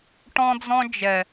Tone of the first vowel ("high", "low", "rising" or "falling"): high